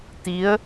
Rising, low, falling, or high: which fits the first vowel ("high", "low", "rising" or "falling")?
rising